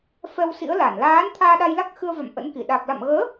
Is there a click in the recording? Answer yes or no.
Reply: no